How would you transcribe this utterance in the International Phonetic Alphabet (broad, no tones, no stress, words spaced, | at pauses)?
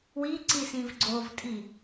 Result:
wiǀisĩv ɡ͡ǀovtʼi